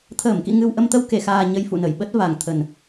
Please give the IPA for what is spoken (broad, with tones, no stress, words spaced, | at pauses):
t̪ʰəː˧˩mkḭ˧˨ ŋɨ˧wʔə˧m t̪ə˧wke˧˩xaː˨˩ ɲə˧jfṵ˧˨nə˧˩jɓə˦˥t̚ va˨˩ŋt̪ʰə˨˩n